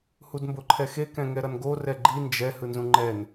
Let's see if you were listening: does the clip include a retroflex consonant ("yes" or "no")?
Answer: no